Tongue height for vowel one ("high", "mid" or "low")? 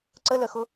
mid